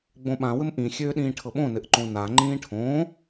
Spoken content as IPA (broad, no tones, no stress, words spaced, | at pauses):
ɡ͡bõɓã wɘmʔĩ xʲøːɗĩːʈʰɤɓõ nɘʔǃõna ŋ͡ǃĩːʈʰõː